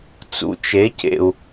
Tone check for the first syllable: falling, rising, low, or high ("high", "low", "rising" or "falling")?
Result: low